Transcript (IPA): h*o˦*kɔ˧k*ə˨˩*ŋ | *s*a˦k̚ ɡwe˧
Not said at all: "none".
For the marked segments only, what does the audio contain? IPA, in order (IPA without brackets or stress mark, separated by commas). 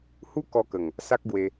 u˦, ə˨˩, s